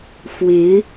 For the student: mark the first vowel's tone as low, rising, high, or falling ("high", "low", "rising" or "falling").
rising